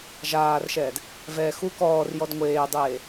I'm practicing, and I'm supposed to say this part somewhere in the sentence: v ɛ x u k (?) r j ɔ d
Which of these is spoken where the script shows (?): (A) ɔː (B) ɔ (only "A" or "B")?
A